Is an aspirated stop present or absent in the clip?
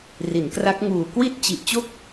absent